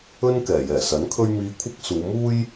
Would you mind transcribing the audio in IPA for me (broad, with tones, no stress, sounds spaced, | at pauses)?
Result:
ɵ˥ n k ɛː˨˩ j ɛː˨˩ s ɐ˨˥ n kʰ ɵ˥ ɥ m iː˧ kʷʰ ɐ˥ k̚ s uː˨˧ m uː˥ j